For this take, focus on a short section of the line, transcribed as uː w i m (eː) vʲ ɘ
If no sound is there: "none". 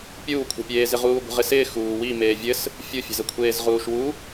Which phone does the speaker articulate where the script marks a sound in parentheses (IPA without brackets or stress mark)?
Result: eː